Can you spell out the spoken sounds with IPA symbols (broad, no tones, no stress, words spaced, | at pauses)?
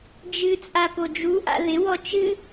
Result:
d͡ʒɨt͡sʼa pod͡ʒuʔa̰ ðɪwɔ t͡ʃɨ